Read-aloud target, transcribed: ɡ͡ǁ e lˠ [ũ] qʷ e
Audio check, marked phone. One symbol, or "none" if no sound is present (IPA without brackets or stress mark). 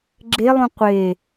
ũ